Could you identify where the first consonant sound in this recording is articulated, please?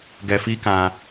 velar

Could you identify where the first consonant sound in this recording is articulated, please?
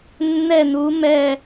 alveolar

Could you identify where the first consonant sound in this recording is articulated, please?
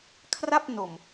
velar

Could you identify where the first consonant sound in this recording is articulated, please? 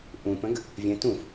glottal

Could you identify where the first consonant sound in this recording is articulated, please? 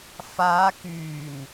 labial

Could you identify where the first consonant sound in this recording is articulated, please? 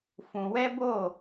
labial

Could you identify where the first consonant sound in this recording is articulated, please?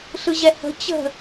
alveolar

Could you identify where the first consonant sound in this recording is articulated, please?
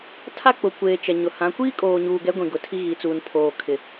alveolar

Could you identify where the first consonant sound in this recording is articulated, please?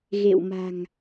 velar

